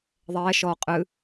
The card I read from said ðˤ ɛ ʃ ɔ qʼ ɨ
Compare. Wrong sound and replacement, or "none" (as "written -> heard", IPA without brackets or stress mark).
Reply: none